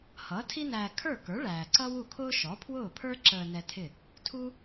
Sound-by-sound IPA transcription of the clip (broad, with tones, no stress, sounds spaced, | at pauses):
h ʌː˩˥ tʰ i˥ n æː˧ kʰ ə˞˥˩ k ə˞˩˥ ɭ æː˩ ǀ ʌ˥ w u˥˩ kʰ ʊː˥ ʃ ɔ˩˥ pʰ w ʊː˥˩ pʰ ə˞˥ ǁ əː˧ n ɛ˧ tʰ ɪ˥˩ | tʰ u˥